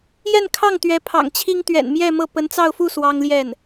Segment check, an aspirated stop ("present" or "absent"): present